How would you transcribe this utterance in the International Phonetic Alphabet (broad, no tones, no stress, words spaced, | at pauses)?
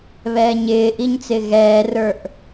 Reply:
βɛːɲɪːʔiɲ t͡sɪːɣɛːrə˞ʔ